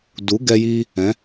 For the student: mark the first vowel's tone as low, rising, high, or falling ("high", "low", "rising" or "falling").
rising